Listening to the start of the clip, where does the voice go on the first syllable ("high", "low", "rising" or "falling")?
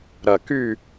low